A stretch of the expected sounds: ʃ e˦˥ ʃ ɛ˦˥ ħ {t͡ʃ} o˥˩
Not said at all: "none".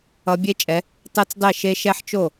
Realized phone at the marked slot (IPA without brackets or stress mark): t͡ʃ